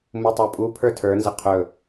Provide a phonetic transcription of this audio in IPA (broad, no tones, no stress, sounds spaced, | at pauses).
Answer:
m u tˤ ə˞ pʼ u pʰ ə˞ tʰ ə˞ n z ə qʰ ɵ